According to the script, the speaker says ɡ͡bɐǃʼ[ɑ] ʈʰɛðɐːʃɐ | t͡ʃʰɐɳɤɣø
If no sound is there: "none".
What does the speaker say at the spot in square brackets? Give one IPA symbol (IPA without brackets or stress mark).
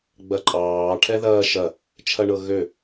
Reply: ɑː